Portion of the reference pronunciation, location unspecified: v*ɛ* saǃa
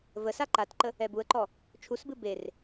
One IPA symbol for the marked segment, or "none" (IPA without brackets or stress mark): ə